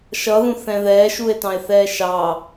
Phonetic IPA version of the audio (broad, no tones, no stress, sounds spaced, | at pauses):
ʃ ʌ ð ũ θ ɛ̃ ð ɛː ʃ u e̯ t ɑ̃ e̯ θ ɛː ʃ ɑ